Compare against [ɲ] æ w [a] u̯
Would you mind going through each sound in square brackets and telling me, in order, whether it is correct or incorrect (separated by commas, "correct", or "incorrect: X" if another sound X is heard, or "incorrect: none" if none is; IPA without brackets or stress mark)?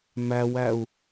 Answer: incorrect: m, incorrect: æ